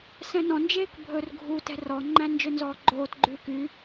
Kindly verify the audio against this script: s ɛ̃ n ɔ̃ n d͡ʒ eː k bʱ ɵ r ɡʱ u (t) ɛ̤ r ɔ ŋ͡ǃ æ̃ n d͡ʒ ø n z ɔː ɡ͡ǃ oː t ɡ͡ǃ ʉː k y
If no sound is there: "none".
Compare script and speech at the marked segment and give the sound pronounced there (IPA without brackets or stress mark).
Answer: t